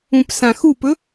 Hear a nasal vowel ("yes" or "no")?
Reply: yes